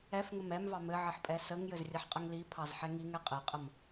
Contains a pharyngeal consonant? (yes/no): yes